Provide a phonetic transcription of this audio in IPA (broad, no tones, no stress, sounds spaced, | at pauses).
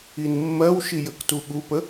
i n mː ɜ w ʃ i j ə k t u ɠ u p ə